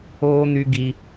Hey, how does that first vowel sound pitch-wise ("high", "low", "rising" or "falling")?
high